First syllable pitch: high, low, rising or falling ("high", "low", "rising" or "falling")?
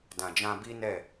low